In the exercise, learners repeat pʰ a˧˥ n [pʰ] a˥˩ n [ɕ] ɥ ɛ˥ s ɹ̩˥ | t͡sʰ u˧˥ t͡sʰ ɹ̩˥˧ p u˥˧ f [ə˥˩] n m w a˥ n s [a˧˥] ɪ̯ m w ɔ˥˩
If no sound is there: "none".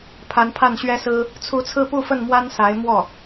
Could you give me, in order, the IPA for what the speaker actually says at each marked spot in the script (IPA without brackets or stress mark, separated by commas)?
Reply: pʰ, ɕ, ə˥˩, a˧˥